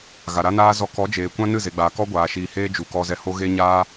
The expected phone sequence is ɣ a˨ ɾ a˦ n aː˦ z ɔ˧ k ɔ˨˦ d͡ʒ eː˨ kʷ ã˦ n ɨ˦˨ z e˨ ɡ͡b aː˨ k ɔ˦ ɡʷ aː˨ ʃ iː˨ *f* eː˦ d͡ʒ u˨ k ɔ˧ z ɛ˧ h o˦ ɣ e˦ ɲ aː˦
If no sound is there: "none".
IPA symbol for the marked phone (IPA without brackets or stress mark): h